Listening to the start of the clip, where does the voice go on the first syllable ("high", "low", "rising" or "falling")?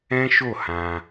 high